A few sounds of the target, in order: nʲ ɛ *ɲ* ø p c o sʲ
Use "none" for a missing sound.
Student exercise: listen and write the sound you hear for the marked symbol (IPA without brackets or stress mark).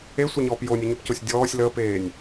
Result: ɲ